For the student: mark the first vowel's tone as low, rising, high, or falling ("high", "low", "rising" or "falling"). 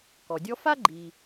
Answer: low